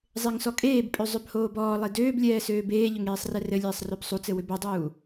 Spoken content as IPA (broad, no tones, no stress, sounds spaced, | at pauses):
zˤ e ŋ s ɔ kʼ eː b pʼ ø zˤ ø b h oː b ɔː lˠ e d øː b lʲ ɛː s øː b eː ʎ ʏ ŋ eː sˤ r ɛ r ɘ lʲ eː sˤ r ø b sˤ u t͡s ɘ w ʏ b ɘ dˤ uː